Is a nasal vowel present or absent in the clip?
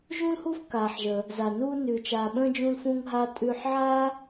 present